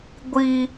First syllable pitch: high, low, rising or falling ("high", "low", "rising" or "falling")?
high